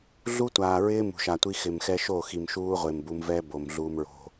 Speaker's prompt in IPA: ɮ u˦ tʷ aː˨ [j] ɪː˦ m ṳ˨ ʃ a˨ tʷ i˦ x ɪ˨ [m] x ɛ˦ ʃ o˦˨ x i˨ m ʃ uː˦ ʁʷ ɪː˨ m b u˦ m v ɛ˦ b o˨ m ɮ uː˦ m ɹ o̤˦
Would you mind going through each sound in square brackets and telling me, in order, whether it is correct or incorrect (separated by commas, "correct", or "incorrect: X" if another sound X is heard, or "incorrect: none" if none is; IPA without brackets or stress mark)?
incorrect: ɹ, correct